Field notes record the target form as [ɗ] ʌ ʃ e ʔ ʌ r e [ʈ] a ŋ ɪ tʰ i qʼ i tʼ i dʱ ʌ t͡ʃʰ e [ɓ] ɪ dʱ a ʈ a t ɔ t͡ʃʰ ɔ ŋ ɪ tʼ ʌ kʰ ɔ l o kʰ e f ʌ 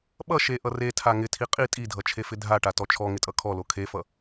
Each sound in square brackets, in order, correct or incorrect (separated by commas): incorrect, incorrect, incorrect